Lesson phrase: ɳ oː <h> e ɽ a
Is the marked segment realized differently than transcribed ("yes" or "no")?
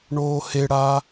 no